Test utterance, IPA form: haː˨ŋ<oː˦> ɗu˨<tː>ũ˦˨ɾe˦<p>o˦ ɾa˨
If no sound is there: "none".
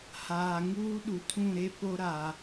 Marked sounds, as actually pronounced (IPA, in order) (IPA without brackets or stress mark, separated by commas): uː˦, tʰ, p